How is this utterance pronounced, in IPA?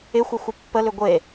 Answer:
ɪxʷəxʷɪ pːəlʏ ɡʷe

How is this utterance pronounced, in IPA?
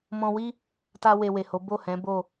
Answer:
mɔ̃˧wi˦ | ta˧we˨ we˨ho˨˦ bo˦˨hɛ̃˨˦ bo˦˨

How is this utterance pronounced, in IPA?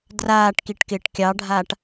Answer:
draːʈkiʈkɪːʈ kʲɑɖʱaːʈ

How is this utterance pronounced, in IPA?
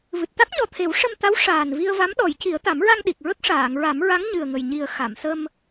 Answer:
vɨ˨˩t̚t̪a˦˥k̚ɲɔ˨˩t̪ʰe˨˩˦w ʂə˧mt̪a˧˥w ʂaː˨˩nvi˧ə̯ va˧˥mɗɔ˨˩˦jci˨˩˦ə̯ t̪a˨˩˦mɹa˧ŋɗi˨˩k̚ ɹə˦˥k̚ʂaː˨˩˨ŋɹa˨˩˦mɹa˧˥ŋ ɲɨ˨˩ə̯ŋə˨˩j ɲi˨˩ə̯ xa˨˩˨msə˧m

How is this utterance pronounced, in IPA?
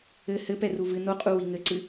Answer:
ɘ hɘpɛ ruvɨ noqʼu wiŋɘǀɨ

